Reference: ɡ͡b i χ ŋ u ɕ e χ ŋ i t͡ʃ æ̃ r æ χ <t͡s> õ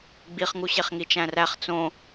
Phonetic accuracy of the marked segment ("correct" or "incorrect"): correct